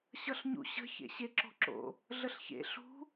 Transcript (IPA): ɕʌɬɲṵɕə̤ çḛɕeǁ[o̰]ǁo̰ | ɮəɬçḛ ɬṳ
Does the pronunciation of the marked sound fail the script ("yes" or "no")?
yes